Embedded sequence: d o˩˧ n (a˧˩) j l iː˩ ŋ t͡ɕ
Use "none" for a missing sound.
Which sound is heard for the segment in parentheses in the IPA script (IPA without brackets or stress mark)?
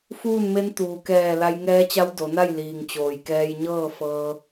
a˥˨